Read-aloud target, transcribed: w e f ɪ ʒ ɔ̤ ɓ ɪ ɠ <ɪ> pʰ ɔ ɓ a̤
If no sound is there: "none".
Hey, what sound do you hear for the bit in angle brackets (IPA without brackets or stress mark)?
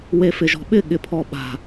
ɪ